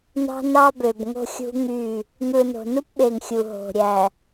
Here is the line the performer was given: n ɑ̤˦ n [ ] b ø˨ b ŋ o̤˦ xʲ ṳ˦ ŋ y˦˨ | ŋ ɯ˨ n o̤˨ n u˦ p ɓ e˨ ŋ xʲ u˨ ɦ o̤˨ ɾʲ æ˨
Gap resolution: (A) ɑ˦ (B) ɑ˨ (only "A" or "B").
A